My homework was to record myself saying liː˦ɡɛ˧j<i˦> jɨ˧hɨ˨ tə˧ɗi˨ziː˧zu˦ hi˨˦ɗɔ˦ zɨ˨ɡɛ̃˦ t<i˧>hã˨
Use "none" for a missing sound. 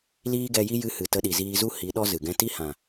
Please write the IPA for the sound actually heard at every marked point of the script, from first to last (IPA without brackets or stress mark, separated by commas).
i˦, i˦